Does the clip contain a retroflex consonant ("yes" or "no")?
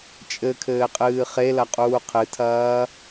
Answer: no